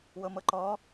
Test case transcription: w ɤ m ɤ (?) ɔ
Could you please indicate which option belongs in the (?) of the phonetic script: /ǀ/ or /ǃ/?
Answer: ǃ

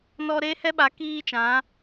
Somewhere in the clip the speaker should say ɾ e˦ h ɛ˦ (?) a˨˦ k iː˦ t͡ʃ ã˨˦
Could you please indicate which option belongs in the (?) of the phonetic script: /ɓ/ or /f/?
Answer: ɓ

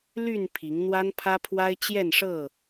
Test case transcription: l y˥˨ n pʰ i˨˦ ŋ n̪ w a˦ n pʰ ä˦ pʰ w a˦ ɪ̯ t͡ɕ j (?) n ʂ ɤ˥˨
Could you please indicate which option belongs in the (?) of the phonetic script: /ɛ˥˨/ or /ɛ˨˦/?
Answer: ɛ˥˨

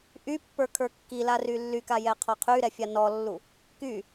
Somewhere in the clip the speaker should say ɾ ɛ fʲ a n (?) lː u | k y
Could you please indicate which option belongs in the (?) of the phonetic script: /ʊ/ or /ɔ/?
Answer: ɔ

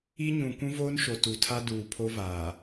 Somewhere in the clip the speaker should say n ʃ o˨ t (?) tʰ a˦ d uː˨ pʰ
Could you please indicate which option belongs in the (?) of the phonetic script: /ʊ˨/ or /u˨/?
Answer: u˨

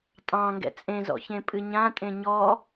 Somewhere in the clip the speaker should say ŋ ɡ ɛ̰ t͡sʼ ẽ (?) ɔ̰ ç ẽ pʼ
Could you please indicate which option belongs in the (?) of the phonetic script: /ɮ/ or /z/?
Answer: z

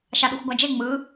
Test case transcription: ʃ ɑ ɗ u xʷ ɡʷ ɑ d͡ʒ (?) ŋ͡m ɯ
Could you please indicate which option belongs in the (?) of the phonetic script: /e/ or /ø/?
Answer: e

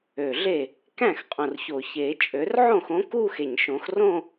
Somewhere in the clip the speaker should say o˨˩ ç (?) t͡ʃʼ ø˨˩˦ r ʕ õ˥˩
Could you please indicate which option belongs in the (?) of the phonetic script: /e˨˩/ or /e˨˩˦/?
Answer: e˨˩˦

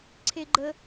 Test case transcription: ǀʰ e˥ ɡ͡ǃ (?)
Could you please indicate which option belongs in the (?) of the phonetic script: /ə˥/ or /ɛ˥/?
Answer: ə˥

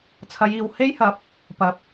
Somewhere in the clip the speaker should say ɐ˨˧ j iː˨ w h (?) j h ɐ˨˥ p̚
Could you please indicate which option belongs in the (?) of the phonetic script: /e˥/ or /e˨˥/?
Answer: e˥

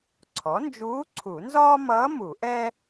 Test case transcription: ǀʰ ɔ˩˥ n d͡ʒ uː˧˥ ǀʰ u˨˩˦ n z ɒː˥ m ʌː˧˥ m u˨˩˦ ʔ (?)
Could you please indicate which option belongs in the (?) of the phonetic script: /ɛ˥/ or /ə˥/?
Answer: ɛ˥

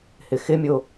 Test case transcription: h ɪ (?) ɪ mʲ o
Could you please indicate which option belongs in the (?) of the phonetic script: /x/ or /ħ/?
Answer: x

